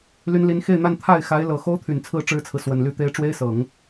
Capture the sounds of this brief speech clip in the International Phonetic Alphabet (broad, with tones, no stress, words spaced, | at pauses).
ly˧˥nli˧˥n xe˥˧ɪ̯n̪a˥˧n t̪ʰa˥˩ɪ̯xa˧˥ɪ̯ lɤ˨˩ xo˥ʊ̯t̪ʰy˨˩nt͡sʰɹ̩˥˩ ʈ͡ʂɻ̩˥t͡sʰɹ̩˨ swə˨˩nly˥˩t̪e˥ɪ̯ ʈ͡ʂwe˥ɪ̯sɤ˨˩˦ŋ